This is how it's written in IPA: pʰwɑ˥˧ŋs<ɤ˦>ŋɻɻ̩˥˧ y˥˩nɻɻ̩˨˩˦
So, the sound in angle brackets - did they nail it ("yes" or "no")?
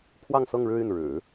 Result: no